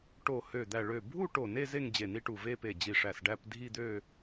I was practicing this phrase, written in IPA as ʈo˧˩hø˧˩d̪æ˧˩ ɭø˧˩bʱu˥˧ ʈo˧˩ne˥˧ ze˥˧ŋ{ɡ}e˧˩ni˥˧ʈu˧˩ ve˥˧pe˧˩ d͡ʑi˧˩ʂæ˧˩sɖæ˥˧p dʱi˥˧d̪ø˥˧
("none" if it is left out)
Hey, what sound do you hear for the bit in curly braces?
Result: d͡ʑ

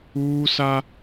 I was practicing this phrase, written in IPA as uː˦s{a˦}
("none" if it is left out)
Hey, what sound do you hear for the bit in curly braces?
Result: a˦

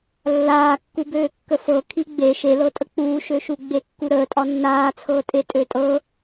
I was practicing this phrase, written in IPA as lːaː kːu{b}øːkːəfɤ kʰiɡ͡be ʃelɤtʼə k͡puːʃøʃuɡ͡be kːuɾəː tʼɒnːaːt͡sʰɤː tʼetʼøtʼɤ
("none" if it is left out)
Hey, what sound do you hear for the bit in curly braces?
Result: b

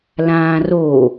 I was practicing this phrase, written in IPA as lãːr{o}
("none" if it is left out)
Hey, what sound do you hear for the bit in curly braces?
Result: o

